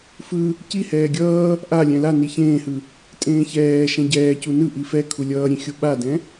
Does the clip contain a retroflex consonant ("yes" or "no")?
no